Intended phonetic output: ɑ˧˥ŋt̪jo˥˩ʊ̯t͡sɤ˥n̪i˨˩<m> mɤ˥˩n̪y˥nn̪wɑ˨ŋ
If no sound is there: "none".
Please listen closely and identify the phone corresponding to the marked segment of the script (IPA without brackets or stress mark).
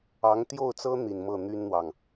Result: n